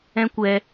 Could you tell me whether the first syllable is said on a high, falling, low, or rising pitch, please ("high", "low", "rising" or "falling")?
high